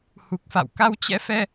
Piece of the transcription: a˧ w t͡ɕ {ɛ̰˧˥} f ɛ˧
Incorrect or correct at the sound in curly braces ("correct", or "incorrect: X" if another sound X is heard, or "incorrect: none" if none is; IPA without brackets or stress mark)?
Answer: correct